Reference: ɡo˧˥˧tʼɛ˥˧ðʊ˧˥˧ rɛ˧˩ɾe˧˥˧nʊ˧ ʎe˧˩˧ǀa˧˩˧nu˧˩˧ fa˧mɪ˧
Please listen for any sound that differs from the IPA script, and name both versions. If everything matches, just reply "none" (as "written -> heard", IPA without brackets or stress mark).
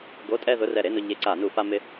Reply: none